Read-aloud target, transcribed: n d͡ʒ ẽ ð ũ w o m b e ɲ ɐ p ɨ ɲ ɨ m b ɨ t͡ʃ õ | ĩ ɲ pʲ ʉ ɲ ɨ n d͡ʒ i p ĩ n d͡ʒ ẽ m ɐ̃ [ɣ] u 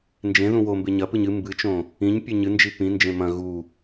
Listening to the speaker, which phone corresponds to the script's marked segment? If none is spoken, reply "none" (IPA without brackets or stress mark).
ɣ